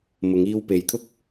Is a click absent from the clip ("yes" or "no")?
yes